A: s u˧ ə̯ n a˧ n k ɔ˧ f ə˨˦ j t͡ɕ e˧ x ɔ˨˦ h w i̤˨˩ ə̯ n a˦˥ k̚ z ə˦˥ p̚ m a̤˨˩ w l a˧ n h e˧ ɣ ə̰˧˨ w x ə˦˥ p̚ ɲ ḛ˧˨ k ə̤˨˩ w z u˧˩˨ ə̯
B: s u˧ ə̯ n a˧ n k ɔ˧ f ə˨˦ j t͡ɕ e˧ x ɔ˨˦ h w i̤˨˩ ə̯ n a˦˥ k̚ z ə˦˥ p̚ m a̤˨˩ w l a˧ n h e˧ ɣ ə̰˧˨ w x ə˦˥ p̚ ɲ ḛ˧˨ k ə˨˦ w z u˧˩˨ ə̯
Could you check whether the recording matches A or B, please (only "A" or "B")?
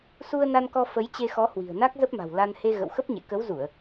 B